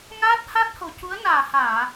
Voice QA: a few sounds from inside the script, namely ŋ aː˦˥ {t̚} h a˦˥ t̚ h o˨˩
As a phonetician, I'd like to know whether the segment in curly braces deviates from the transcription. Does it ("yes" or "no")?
no